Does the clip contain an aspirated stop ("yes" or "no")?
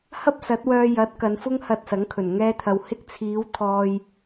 yes